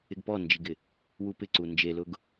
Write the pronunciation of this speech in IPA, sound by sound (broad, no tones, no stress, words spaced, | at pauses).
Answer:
ɪɡpɔnd͡ʒiɡɪ | wupɪǀu nd͡ʒelʊɡ